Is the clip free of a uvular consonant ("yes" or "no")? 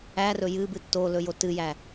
yes